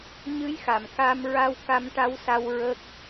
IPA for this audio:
ɲ ɨ˧˥ j x a˨˩˨ m k a˧ m ɹ a˧ w k a˧ m ʈ a˧˥ w s a˧ w ɹ ə˦˥ k̚

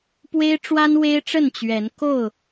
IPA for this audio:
p w e˦ ɪ̯ ʈ͡ʂ w a˦ n w e˦ ɪ̯ ʈ͡ʂ ə˥˨ n t͡ɕ ɥ ɛ˨˦ n k o˥˨ ʊ̯

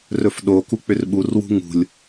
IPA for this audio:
r ɵ f ɗ o k u k͡p ʏ r ɓ u r w ṳ ŋ ṳ lʲ

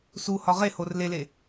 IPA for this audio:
s u h ɒ ʁ e h o r l e l e

